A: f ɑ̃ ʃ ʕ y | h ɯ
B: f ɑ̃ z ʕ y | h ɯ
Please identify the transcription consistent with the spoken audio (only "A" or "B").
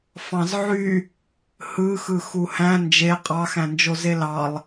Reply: B